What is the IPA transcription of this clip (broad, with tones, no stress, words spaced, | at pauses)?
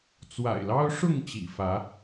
t͡swa̰˨˩ɪ̯lɑ˦ʊ̯ʂʊ˥˨ŋ t͡ɕḭ˨˩fä˨˦